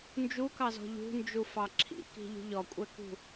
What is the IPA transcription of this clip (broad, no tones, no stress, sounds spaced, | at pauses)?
n d͡ʒ u k ɑ z ɔ̤ ʎ ṳ n d͡ʒ u f ɑ ǁʰ ḭ k i̤ ʎ ṳ ʎ ɔ kʷʼ ɛ k ṳ